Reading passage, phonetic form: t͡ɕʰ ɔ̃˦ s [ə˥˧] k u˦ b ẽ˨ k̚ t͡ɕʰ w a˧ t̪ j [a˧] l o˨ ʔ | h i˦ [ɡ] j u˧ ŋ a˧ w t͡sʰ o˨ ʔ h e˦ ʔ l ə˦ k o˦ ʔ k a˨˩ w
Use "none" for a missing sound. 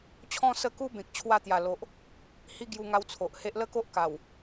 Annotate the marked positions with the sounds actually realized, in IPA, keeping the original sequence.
ə˥˧, a˨˩, ɡ

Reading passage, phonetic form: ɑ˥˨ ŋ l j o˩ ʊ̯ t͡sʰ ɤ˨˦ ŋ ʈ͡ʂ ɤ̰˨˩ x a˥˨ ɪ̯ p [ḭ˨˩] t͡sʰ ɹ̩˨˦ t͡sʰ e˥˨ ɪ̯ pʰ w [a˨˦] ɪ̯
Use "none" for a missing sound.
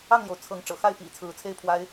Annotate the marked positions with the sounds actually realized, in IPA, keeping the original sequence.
ḭ˨˩, a˦

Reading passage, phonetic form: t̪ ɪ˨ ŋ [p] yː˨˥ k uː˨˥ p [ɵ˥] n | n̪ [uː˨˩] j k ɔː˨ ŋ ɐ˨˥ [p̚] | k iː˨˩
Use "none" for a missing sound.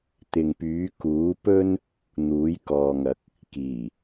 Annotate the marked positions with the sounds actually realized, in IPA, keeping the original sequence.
p, ɵ˥, uː˨˥, k̚

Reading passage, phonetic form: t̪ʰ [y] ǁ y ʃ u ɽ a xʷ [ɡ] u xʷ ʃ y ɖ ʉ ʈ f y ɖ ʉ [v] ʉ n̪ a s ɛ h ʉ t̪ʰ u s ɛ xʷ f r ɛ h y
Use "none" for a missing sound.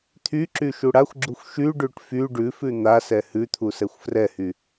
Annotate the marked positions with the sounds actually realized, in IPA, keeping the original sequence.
y, ɡ͡ǁ, f

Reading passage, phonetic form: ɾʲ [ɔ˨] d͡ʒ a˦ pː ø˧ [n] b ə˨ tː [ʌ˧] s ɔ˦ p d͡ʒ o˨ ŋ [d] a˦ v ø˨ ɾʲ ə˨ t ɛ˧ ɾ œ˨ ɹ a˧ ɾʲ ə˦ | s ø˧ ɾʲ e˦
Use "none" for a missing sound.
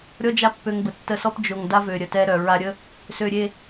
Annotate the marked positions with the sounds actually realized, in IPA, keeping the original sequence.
ɔ˦, ŋ, ə˧, d

